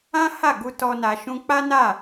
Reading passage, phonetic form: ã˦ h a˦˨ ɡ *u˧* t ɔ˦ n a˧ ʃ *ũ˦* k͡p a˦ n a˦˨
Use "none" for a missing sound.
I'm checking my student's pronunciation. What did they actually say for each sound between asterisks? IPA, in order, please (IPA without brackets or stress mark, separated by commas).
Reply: u˧, ũ˧